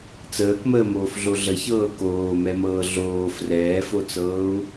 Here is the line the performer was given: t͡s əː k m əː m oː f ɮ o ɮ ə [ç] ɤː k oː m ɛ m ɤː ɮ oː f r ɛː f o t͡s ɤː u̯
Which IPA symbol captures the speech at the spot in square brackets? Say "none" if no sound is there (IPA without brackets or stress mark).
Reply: ç